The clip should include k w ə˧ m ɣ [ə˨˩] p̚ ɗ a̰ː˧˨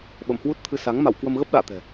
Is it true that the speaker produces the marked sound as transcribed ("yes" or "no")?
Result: no